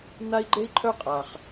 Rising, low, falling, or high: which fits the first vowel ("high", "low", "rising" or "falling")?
high